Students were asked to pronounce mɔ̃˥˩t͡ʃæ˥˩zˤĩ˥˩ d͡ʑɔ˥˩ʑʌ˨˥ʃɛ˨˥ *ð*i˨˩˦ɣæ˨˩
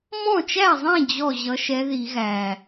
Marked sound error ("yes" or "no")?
no